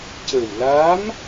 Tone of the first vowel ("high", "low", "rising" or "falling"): low